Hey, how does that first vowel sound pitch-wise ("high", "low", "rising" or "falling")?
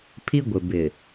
high